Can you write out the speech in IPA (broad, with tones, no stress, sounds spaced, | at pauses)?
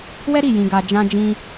w ɛ˦ ɾ i˦˨ j ĩ˧ ɡ a˧ d͡ʒ ã˧ d͡ʒ ĩ˧